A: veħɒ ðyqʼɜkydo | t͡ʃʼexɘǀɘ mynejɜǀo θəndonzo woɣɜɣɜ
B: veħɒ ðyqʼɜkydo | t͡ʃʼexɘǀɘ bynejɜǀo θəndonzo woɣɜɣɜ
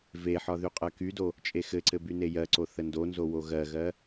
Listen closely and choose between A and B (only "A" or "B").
B